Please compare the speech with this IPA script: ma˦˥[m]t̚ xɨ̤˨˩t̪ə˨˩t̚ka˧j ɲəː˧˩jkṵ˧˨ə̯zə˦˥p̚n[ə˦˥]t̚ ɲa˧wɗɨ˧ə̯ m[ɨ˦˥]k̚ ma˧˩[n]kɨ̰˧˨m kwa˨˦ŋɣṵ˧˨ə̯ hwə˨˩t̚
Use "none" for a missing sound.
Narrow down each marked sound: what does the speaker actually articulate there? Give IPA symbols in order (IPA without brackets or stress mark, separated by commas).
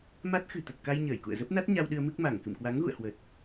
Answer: none, a˦˥, ɨ˦˥, ŋ